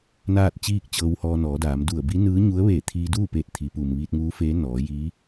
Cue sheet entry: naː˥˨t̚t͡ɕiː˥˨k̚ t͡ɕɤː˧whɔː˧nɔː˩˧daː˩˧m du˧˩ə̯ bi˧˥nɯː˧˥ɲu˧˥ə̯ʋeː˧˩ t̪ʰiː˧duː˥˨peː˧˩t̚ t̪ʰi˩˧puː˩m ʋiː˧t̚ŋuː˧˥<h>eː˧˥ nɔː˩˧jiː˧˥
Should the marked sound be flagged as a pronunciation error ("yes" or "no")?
yes